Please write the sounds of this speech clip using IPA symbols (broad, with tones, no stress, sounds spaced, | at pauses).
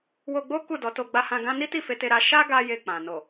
w o˧ ɡ͡b o˦ k u˦˨ d ɔ˨˦ t o˧ ɡ͡b a˧ h ã˧ ɡ ã˦ n i˦ t i˦˨ f e˧ t e˧ ɾ a˦ ʃ a˦ ɡ a˦ j e˧ k͡p ã˨ n o˨